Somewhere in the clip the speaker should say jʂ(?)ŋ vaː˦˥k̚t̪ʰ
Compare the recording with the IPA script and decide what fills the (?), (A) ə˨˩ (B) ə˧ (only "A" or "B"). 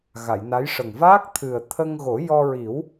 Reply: A